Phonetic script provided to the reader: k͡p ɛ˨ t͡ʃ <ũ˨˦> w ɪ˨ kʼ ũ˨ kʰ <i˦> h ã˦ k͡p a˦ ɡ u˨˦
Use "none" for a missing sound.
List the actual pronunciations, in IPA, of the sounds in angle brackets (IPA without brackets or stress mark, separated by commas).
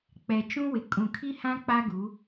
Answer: ũ˦, i˦